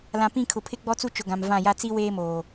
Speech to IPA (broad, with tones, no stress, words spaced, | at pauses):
lã˨pĩ˦˨kʰʊ˨pʰɪ˦ ɡ͡bɔ˦t͡su˦ t͡ʃʊ˨ɡã˨m vã˦˨ja˦ t͡si˦ weː˦moː˨